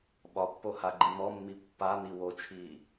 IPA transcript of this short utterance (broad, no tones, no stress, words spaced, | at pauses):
ɓɒpːo haɡ͡ǃimɔmːi pːan̪i wot͡ʃʰiː